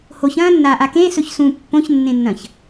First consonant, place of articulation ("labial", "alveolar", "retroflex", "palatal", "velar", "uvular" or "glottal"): glottal